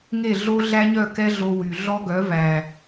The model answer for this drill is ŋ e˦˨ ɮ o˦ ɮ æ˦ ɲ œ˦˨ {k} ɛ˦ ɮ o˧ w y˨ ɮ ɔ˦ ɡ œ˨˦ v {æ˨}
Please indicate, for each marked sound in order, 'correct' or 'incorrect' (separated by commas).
correct, correct